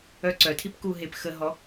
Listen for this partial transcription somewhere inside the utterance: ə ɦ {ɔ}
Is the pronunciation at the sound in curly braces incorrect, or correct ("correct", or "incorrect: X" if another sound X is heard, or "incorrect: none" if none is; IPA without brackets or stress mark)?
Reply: correct